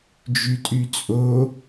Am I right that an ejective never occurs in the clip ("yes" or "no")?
no